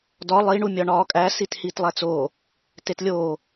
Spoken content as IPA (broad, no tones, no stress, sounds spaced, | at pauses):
d ɒ lˠ i ɳ u mʲ ɒ ɳ ɒː kʼ æ s i t h iː t lˠ æ t͡s oː | t e t lʲ oː